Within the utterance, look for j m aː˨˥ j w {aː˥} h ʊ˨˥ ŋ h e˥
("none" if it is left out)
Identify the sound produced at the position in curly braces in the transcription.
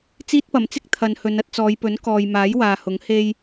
aː˨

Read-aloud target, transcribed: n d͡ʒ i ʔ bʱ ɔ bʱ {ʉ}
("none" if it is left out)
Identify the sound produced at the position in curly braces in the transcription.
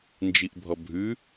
ʉ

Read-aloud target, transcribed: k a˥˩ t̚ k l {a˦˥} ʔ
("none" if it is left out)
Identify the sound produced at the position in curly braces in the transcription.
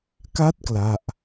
a˥˩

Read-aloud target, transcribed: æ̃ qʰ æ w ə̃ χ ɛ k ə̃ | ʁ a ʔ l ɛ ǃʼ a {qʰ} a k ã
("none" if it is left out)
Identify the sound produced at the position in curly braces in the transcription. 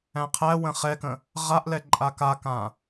k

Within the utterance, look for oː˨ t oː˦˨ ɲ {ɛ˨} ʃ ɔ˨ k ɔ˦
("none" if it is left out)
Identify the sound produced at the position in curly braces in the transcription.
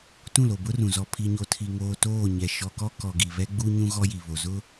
ɛ˨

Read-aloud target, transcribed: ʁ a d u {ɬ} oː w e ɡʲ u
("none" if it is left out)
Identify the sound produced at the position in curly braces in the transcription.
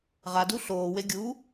ɬ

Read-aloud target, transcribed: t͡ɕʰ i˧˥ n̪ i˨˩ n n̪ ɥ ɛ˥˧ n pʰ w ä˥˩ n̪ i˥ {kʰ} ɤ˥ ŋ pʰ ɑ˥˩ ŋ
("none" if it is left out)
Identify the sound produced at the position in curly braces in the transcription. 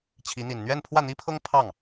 pʰ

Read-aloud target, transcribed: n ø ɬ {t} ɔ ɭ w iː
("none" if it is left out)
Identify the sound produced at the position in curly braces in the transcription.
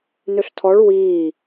tʰ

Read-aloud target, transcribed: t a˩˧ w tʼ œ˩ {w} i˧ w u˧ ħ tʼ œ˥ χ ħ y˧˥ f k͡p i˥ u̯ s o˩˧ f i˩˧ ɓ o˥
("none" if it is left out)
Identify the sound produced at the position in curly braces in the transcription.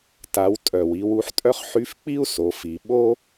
w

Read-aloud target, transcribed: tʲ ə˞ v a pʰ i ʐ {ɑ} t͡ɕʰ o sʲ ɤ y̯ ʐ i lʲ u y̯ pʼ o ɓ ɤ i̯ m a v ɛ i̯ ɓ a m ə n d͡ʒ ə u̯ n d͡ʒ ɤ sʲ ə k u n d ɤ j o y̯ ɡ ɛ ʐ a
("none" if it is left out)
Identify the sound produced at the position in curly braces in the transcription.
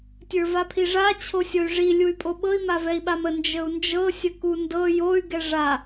a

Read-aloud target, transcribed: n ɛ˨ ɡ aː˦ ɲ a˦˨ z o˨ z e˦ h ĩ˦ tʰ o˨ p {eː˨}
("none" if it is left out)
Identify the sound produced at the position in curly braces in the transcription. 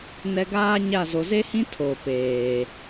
eː˨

